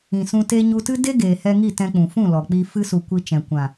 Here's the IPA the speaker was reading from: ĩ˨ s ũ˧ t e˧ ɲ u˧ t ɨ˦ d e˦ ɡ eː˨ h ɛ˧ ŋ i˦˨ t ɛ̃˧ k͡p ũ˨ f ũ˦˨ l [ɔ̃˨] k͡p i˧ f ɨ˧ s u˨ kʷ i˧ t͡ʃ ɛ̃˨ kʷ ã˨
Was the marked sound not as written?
yes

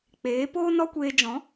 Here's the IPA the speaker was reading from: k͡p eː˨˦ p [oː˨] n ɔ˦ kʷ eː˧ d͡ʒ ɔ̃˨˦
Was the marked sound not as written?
yes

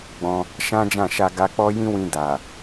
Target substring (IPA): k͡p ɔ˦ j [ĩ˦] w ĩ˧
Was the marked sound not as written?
no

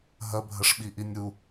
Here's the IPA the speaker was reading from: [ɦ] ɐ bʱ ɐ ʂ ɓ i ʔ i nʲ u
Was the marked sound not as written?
no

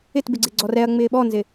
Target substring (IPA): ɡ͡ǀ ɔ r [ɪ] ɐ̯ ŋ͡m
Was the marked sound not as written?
yes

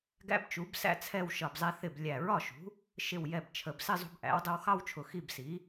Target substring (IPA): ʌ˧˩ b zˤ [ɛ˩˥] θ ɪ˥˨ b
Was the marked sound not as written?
yes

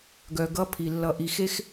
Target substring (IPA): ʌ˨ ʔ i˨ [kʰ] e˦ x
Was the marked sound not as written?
yes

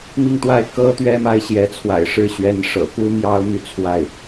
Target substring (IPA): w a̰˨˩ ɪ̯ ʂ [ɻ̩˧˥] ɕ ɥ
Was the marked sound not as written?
yes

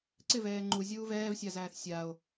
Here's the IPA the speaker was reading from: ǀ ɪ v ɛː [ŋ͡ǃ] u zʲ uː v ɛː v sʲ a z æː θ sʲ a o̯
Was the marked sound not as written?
no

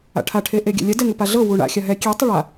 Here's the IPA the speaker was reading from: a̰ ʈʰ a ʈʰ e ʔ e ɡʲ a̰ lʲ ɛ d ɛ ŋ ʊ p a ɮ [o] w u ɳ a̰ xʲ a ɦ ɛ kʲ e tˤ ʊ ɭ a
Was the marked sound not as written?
yes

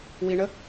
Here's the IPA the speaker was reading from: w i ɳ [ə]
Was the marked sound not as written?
no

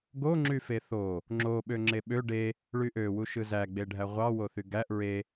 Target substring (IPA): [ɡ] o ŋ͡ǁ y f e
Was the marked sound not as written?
no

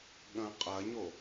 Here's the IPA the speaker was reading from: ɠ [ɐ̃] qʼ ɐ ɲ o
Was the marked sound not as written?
no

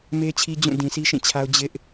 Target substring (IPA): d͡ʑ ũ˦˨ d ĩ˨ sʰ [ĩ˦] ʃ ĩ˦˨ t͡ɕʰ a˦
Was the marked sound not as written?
yes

